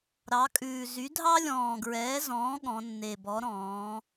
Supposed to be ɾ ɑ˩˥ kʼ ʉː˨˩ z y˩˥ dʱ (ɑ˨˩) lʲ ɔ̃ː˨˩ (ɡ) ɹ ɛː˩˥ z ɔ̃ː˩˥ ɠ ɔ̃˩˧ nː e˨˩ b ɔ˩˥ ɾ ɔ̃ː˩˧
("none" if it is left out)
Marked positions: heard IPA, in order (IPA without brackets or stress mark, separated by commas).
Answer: ɑ˥, ɡ